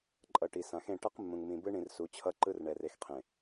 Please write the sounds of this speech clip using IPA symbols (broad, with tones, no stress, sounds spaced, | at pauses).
ǃʼ ʌ˨ ʈ i˨ s ã˨ x ẽ˦˨ ʈ ʌ˦ q mː ũ˨ ŋ m ĩ˨ b ɯ˦ ɳ ĩ˨ r s u˨˦ t͡ɕʰ ʌ˦ ǃ ɯ˦ r ɳ ɛ˨ r e˨ x qʰ ẽ˨